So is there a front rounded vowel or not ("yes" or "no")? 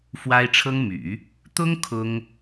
yes